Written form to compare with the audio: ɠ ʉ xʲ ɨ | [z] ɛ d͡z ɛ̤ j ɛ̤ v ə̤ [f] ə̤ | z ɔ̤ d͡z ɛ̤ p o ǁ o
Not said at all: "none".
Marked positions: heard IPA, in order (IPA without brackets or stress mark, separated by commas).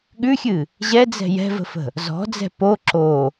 ʑ, f